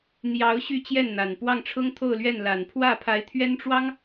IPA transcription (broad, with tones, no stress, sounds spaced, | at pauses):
n̪ j ɑ˧˥ ʊ̯ ɕ y˥˧ t͡ɕ j ɛ˥˩ n n̪ a˨˩ n p w ɑ˥˩ ŋ ʈ͡ʂʰ ʊ˥ ŋ t̪ʰ o˥˧ ʊ̯ l ɥ ɛ˥˩ n l a˨˩ n pʰ w ä˥˩ pʰ a˧˥ ɪ̯ t̪ʰ ɥ ɛ˥ n ʈ͡ʂ w ɑ˥ ŋ